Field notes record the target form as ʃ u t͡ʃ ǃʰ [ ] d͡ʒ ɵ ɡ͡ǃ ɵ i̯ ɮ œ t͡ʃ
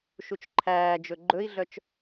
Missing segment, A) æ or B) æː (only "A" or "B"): B